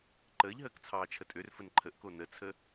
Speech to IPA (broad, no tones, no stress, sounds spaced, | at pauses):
ǃ əː ʎ ɦ əː k t͡sʰ ɑː t͡ʃʰ ə tʼ ø r f ə n ǃʰ ə ʔ k o n ə t͡sʰ ə